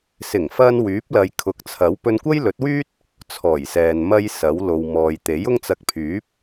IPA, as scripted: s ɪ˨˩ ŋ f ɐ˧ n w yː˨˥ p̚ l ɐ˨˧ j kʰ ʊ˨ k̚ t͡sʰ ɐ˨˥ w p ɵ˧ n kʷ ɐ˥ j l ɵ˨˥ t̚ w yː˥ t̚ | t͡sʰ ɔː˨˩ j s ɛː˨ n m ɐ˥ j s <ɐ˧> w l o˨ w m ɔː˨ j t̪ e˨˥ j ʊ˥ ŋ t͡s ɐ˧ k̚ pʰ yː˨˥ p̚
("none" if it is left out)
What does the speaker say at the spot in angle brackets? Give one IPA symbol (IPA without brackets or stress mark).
ɐ˨˥